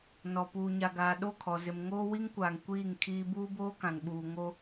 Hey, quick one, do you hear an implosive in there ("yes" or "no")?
yes